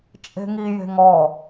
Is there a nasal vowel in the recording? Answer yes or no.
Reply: no